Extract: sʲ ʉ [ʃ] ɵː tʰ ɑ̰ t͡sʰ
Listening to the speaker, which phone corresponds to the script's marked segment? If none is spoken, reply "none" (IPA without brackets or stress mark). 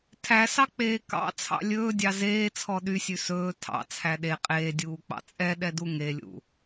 s